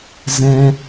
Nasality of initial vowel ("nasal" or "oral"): nasal